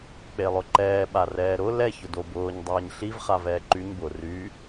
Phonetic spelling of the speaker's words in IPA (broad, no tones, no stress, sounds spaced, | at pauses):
k͡p e lˠ ʊ ǃ ɛː ɓ a r ɛː ɾ ʊ l ɛ ç ʊ d o b ʊː ɲ dˤ ɛː ɲ ɬ i v χ a v ɛː ǃ y ɲ b ʊ r y